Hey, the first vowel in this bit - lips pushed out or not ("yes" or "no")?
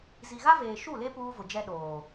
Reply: no